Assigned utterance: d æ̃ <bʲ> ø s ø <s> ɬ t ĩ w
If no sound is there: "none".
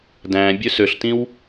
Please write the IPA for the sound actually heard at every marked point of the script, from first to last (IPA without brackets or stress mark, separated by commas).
bʲ, none